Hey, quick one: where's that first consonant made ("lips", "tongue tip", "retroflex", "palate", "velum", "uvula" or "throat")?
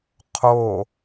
uvula